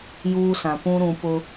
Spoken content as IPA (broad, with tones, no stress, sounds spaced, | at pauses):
j uː˦ s ã˨ p ũ˦ ɾ ũ˨ p ʊ˦